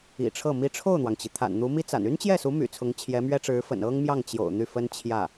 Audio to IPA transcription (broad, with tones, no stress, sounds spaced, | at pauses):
ḭ˨˩ ʈ͡ʂʰ ɤ˥˩ m i˧˥ ʈ͡ʂʰ o˥˩ ʊ̯ n̪ w ɑ˩ ŋ t͡ɕ i˩ t̪ʰ a̰˨˩ n n̪ u˧˥ m i˥ t͡s a̰˨˩ n y˥ n t͡ɕ j ɛ˥˩ s u˧˥ m y̰˨˩ t͡sʰ ʊ˧˥ ŋ t͡ɕʰ j ɛ˧˥ m ɥ ɛ˥ ʈ͡ʂ ɻ̩˧˥ f ə̰˨˩ n ɤ˥ ŋ m j ɑ˥˩ ŋ t͡ɕ j o̰˨˩ ʊ̯ n̪ y˥˩ f ə˥ n t͡ɕʰ j ä˥˩